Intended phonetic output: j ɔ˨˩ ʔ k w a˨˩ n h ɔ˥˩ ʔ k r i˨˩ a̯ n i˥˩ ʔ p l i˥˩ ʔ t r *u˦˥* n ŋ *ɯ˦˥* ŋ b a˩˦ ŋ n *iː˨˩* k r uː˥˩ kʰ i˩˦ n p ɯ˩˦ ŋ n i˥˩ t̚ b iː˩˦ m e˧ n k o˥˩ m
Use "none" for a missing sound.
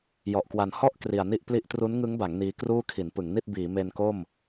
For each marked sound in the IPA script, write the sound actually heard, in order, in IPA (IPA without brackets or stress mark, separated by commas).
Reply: u˦˥, ɯ˦˥, iː˦˥